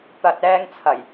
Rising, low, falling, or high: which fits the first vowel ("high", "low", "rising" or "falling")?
low